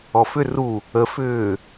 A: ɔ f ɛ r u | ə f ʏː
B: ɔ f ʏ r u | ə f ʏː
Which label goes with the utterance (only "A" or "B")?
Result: B